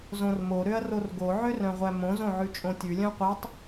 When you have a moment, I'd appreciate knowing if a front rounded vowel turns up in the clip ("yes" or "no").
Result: yes